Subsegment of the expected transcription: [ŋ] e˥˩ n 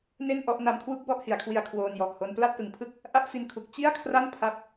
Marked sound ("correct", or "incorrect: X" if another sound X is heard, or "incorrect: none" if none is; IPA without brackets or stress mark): incorrect: n